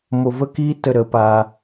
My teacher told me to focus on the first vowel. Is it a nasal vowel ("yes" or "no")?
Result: no